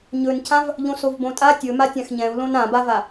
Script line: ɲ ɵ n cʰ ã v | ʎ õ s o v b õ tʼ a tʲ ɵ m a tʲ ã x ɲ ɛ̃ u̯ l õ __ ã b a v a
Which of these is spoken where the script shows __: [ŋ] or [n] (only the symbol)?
n